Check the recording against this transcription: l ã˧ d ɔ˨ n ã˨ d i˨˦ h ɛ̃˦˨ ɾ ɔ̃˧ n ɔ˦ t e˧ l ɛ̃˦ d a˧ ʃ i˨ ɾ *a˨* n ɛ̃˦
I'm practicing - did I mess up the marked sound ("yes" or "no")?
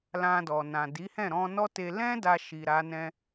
yes